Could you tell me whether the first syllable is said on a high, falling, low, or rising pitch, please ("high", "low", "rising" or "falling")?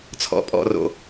low